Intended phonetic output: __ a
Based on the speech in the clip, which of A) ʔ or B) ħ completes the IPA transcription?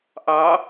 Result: A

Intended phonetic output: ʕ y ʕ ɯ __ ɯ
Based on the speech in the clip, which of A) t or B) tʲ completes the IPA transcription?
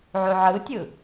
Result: B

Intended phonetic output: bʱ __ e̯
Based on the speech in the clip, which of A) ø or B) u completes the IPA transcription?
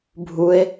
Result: B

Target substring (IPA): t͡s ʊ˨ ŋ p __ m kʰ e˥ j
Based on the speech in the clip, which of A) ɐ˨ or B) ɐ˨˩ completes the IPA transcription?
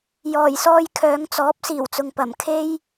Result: B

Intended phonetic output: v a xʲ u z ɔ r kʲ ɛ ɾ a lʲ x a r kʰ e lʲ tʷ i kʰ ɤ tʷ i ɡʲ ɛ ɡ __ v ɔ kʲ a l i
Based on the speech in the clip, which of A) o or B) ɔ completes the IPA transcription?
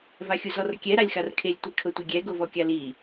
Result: A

